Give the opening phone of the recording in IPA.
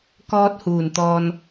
k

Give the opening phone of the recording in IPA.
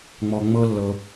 ŋ͡m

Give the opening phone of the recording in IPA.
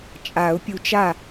t͡ʃʼ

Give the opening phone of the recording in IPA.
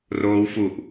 r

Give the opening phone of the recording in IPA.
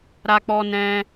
ɾ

